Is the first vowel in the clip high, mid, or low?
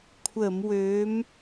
mid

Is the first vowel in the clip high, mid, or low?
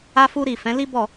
low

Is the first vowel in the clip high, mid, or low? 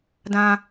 low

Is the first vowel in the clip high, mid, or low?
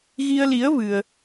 high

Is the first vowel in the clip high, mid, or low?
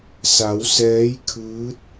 low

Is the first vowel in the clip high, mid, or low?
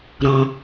mid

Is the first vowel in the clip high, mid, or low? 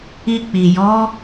high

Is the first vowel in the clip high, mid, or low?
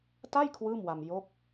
low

